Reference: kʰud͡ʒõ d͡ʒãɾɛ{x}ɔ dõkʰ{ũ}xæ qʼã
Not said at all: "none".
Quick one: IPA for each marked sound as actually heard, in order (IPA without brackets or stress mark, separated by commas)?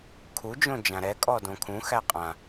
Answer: kʼ, ũ